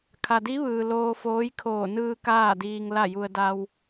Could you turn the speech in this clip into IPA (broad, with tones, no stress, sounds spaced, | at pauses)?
kʰ a˩ d i˧˥ ʋ ɯː˩ l oː˧ f oː˧˥ j kʰ oː˧˩ n ɯː˧ k aː˥˨ d iː˧ ŋ l a˥˨ j u˧ ə̯ d a˧ w